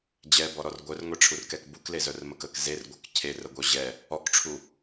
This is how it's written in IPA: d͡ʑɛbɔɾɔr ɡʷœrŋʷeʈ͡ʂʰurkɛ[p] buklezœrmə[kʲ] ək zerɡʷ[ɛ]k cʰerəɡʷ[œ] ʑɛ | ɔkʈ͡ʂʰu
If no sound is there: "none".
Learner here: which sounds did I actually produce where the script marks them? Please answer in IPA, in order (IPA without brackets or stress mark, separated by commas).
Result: k, k, œ, œ